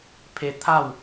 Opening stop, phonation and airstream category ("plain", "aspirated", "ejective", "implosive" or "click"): aspirated